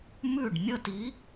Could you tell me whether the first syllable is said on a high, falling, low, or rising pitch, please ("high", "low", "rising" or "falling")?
falling